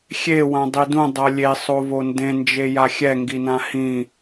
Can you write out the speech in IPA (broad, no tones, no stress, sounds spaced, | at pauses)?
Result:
xʲ e w ã dˤ i d ũ dˤ ʌ lʲ e sˤ o v o n d ẽ n d͡ʒ e j a xʲ ɛ ŋ ɡ i n ã h ĩ